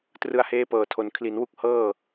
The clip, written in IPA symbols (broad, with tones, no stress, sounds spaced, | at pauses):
t r ɯ˧ a̯ h eː˦˥ p ɤː˨˩ tʰ o˨˩ n kʰ l i˩˦ n w u˥˩ k̚ h ɤː˥˩